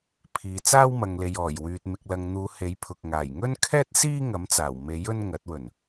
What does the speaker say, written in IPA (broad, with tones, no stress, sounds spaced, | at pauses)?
pʰ iː˨ t͡s aː˥ w m ɐ˨ ŋ l e˨ j ɔː˨˩ j w yː˨ t̚ m ɪ˨ k̚ l ɐ˨ ŋ n̪ uː˨˧ h e˨˥ j pʰ ʊ˨ k̚ ŋ aː˨˩ j ŋ ɵ˥ n kʰ ɛː˥ t̚ s iː˥ ŋ ɐ˨˥ m t͡s aː˨˩ w m e˨˥ j ɵ˥ n ŋ ɐ˨˥ t̚ w ɵ˨˩ n